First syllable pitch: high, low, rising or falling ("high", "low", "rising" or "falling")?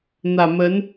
low